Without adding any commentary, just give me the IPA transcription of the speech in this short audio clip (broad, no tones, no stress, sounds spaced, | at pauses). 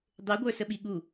dˤ e ɡʷ ə˞ s ə ɓ i ɠ u